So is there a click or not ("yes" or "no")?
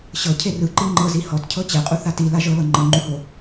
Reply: yes